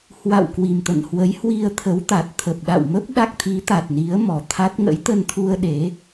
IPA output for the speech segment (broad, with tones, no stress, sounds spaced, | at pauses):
h w a̰˧˨ w k w i˨˩ m t̪ ə̰˧˨ n h w ə˨˦ j h w i˧ ə̯ t̪ʰ ə˨˦ w t̪ a˨˩ t̚ t̪ʰ ə˨˩ p̚ ɗ a̰˧˨ w m ə˦˥ p̚ ɗ a˦˥ k̚ t̪ʰ i˨˦ t̪ a˨˩ t̚ n i˨˦ ə̯ m ɔ˨˩ t̪ʰ a˦˥ t̚ ŋ ə̰˧˥ j t̪ ə˧ n t̪ʰ u˧ ə̯ ɗ e˨˦